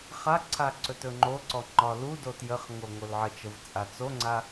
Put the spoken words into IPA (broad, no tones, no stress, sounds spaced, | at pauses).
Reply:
χ a ǀʰ a ǀ ɵ t ɵ ŋ͡ǃ o ǀ ɔ ŋ͡ǃ ɒ l u d o t j ə χ ŋ o ŋ o l ʕ ə t͡ʃ ə v t͡sʼ a t͡s o ŋ͡ǀ a